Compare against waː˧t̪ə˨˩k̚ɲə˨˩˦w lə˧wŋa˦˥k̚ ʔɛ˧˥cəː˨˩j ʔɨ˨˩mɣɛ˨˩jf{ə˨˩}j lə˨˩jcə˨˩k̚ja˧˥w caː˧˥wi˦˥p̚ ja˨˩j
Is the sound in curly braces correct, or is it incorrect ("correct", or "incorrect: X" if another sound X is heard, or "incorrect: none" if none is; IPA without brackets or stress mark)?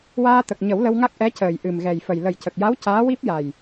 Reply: correct